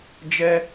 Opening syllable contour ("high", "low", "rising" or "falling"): high